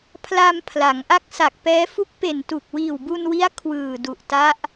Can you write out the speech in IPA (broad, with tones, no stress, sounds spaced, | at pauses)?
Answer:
pʰ l aː˧ m pʰ l a˩˦ ŋ ʔ a˦˥ k̚ s a˨˩ k̚ p ɛː˦˥ f u˦˥ k̚ p e˨˩ n t u˨˩ k̚ w iː˨˩ w b u˧ n w i˦˥ a̯ kʰ w ɯː˨˩ d u˨˩ ʔ t a˦˥ ʔ